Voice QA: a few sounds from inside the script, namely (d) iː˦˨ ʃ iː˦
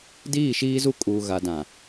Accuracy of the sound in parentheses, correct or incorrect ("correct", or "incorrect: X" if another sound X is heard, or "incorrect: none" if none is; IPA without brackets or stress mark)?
correct